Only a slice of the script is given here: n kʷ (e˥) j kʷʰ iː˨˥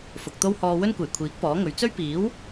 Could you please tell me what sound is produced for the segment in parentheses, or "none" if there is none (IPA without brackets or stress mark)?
e˨˩